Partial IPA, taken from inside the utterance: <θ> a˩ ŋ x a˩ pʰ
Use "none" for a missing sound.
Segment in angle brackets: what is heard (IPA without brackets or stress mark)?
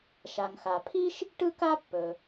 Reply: ʃ